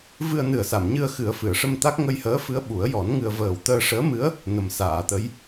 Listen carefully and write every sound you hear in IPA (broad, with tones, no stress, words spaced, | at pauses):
vɨ˧ə̯nɨ˨˩ə̯sa˨˩˨mɲɨ˧ə̯ xɨ˨˩˦ə̯fɨ˨˩˨ə̯ʂə˧mt̪a˦˥k̚ ŋə˧jhəː˧˥fɨ˧˥ə̯ ɓu˨˩˦ə̯jɔ˨˩˦nŋɨ˧ə̯ vəː˨˩wt̪əː˧ʂəː˧˥mɨ˧˥ə̯ | nə˨˩˦msaː˨˩˨t̪ə˧˥j